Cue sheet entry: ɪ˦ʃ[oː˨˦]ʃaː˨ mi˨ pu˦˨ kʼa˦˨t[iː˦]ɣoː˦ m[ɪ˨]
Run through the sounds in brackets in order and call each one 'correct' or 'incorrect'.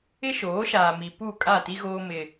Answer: correct, incorrect, incorrect

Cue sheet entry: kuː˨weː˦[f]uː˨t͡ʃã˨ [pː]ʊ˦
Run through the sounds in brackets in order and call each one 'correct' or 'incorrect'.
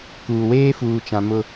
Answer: correct, incorrect

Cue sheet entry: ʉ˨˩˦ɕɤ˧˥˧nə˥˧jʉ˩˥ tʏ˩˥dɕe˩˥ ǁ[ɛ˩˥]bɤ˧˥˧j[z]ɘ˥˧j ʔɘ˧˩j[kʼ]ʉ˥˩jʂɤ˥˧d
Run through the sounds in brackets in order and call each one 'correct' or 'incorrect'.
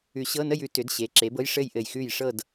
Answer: incorrect, incorrect, incorrect

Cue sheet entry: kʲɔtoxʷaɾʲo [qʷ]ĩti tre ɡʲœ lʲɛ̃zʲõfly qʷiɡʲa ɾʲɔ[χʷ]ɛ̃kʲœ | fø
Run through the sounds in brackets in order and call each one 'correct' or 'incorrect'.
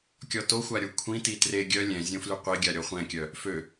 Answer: incorrect, correct

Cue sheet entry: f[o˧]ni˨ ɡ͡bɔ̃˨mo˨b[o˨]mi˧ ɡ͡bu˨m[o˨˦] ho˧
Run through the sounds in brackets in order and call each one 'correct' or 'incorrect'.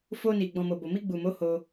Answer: correct, correct, correct

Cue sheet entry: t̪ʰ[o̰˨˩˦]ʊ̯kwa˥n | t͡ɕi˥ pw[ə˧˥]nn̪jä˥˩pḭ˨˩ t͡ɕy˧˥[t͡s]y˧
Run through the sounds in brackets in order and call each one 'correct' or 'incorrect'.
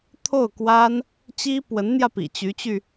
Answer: incorrect, correct, incorrect

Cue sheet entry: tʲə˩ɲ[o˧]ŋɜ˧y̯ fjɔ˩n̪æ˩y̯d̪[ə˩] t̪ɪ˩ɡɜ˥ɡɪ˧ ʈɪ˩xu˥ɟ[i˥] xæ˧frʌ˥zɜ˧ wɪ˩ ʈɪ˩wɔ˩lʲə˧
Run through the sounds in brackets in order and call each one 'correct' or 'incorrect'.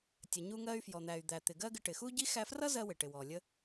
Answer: incorrect, incorrect, correct

